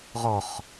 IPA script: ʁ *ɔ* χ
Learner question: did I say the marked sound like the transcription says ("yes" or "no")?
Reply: yes